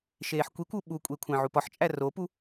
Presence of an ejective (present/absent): present